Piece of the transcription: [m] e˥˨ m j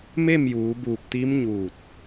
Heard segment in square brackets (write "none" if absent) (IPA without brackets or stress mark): m